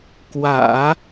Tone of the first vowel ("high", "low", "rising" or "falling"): low